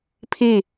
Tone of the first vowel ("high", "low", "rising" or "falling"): falling